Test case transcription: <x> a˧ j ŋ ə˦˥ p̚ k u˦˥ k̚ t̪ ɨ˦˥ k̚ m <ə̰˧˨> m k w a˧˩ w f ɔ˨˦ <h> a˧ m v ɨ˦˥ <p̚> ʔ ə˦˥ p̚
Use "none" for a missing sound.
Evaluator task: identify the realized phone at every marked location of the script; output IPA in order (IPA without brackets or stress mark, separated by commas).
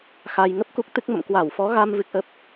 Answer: x, ə̰˧˨, ɣ, k̚